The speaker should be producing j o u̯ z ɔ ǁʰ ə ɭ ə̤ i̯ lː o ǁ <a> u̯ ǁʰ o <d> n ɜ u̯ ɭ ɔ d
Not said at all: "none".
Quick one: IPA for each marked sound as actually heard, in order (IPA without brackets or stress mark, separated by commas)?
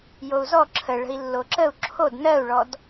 ə, d